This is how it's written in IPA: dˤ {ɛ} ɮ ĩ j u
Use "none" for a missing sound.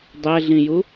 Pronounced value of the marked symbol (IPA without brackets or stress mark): ɛ